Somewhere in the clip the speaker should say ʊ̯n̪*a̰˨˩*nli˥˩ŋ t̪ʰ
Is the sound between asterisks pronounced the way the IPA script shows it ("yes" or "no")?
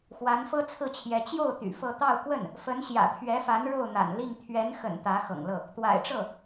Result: yes